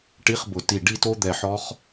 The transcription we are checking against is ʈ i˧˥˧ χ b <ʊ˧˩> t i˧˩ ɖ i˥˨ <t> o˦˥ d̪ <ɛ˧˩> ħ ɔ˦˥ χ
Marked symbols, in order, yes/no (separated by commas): yes, yes, yes